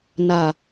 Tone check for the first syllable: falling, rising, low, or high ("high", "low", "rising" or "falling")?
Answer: low